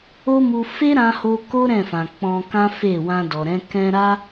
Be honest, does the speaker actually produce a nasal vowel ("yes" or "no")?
yes